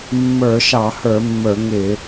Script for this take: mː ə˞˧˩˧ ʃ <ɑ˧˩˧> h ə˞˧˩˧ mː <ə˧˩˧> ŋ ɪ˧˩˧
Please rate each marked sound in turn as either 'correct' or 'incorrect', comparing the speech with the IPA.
correct, incorrect: ə˞˧˩˧

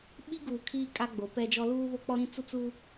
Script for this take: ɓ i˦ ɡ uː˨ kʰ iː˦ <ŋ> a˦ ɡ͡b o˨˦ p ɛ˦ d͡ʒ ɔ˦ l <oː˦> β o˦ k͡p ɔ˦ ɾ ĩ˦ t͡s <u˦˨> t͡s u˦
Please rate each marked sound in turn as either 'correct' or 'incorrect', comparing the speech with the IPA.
incorrect: kʼ, incorrect: uː˦, incorrect: u˦

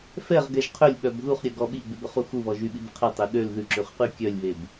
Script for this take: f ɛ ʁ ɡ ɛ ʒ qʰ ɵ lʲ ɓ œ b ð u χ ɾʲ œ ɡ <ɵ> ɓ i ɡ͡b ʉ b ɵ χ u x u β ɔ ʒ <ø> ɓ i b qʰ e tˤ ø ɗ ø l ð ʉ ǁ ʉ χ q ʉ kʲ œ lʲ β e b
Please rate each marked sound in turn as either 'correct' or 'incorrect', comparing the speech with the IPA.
incorrect: ɔ, incorrect: y

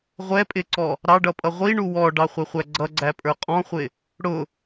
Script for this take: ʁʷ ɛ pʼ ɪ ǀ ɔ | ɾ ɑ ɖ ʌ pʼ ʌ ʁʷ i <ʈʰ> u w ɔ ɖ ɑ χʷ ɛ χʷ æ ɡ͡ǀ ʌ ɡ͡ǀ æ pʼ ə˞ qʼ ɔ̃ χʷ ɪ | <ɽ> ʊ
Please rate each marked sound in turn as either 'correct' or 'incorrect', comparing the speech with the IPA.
incorrect: ɳ, correct

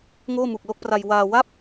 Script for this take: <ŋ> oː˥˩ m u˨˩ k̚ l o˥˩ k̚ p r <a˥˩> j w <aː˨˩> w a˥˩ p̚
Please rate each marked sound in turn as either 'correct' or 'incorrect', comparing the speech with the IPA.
correct, incorrect: a˧, incorrect: aː˧

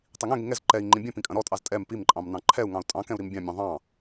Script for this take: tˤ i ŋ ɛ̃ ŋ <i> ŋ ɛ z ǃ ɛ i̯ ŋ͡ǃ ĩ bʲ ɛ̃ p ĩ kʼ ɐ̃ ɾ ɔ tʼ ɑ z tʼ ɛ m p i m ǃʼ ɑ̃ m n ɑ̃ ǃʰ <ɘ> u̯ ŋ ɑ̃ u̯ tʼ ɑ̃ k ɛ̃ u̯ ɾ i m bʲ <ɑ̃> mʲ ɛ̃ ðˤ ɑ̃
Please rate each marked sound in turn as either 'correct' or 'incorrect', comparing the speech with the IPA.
correct, incorrect: ɛ, correct

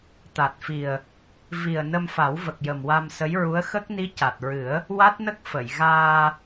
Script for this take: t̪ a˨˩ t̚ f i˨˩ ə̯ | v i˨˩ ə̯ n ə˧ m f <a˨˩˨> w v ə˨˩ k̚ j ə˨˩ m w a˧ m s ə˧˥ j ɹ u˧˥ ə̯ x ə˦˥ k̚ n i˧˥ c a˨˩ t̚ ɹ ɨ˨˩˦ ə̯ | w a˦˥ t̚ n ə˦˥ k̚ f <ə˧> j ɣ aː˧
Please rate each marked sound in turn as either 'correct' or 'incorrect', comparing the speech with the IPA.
incorrect: a˨˩˦, incorrect: ə˨˩˨

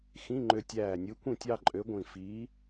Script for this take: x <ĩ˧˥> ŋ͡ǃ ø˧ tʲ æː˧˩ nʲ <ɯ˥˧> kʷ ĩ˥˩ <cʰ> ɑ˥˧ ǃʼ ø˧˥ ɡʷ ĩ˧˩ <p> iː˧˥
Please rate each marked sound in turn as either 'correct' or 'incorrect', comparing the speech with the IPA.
incorrect: ĩ˧˥˧, incorrect: ɯ˧˥, incorrect: tʲ, incorrect: f

